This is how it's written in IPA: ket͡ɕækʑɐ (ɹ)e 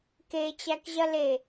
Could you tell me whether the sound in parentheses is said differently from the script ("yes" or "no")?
yes